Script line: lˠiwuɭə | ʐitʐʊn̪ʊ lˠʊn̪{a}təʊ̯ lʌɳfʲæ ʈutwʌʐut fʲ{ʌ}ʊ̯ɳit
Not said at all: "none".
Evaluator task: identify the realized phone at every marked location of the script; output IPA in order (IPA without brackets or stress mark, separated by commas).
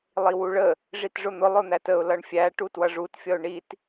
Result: æ, ʌ